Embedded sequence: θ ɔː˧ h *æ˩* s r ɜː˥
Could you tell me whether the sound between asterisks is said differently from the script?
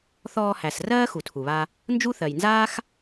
no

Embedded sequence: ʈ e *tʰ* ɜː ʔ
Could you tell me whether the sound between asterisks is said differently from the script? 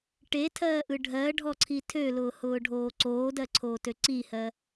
no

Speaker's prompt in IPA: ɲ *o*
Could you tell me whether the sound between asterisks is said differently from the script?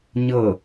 yes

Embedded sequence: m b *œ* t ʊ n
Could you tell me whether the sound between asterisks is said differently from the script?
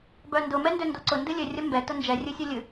yes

